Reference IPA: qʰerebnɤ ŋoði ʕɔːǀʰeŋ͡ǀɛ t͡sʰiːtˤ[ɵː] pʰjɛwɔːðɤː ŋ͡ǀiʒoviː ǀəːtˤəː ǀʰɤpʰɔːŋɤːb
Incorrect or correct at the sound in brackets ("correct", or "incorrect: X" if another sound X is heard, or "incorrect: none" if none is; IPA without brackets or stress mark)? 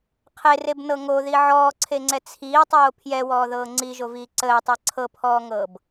incorrect: oː